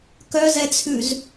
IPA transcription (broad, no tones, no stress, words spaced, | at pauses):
kœzɛt͡sʰʉz